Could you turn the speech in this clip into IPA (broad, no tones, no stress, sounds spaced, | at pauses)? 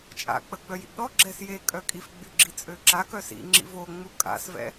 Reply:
t͡ʃʼ a̰ k͡p ə ɡ͡b œ j ḭ ɡ ɗ ɔ ɡ͡ǁ ɛ s j e kʼ œ kʼ i f ɡ͡b y ɡ͡ǁ i t͡sʼ ø ǁ a k œ s ḭ ŋ͡ǁ ḭ v o ŋ͡m u kʼ a̰ s v ɛ̰